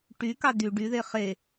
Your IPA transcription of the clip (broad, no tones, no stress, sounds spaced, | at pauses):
ʈ y k ɑ d y ɖ y ð e χ e